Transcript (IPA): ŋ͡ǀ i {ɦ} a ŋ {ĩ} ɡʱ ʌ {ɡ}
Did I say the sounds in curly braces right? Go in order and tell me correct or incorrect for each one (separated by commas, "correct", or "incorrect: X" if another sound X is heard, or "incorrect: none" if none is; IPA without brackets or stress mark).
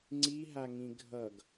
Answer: correct, correct, correct